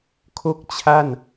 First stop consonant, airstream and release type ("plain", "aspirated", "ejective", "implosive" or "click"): aspirated